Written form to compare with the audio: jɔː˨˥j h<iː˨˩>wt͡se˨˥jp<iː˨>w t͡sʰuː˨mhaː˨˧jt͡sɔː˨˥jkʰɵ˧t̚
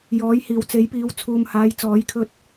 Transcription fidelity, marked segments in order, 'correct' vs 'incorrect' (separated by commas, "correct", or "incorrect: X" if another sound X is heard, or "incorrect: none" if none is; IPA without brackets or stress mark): correct, incorrect: iː˨˧